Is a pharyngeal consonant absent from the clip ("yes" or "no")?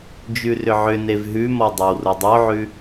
no